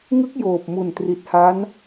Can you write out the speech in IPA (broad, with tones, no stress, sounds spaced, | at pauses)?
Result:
ŋ ɯ˦˥ k̚ j oː˨˩ p̚ m u˨˩ n t r i˨˩ t̚ h a˦˥ n